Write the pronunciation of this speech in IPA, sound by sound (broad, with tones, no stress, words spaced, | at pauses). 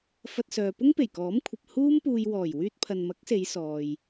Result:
fɐ˧t̚sœː˨ pʊ˥ŋpe˨˩jkɔː˨˥mkʷʰɐ˨p̚ huː˥mpuː˧j wɔː˨˩j wyː˧t̚pʰɐ˨nmɐ˨˥k̚se˨˧j sɔː˨j